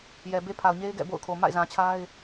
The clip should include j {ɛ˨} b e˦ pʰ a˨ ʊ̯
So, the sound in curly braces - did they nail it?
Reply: yes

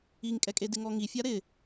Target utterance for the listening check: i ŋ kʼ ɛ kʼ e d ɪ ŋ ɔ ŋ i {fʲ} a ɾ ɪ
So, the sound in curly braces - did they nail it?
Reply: yes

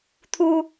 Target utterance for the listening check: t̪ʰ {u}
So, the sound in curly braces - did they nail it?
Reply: yes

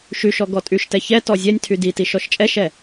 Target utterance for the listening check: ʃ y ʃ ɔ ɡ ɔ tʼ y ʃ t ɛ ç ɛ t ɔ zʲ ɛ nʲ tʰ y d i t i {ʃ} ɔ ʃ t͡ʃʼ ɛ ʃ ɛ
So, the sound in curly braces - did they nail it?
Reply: yes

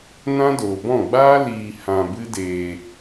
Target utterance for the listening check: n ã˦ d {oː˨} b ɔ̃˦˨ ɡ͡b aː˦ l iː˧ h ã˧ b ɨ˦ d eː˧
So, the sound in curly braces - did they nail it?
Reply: yes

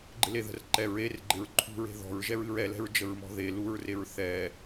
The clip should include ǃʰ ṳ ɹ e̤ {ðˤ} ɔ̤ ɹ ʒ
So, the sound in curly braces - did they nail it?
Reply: no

